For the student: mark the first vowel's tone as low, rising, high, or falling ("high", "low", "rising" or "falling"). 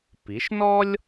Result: rising